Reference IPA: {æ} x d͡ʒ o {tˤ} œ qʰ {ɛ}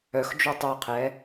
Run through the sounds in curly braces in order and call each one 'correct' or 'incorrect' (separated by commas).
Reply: incorrect, correct, correct